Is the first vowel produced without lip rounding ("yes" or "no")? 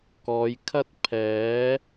no